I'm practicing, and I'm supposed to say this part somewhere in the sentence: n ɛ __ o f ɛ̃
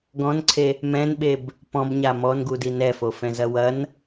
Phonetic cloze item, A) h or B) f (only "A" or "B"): B